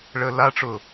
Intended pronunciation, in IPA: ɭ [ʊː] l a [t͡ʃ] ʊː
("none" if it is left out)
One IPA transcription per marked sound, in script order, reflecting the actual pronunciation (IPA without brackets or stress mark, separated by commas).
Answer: əː, ʈ͡ʂ